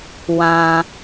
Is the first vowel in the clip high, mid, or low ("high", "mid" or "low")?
low